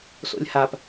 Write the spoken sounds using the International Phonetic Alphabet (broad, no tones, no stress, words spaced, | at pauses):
so̰lʲhap